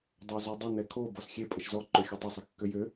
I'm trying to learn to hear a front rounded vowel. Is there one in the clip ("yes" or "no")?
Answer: yes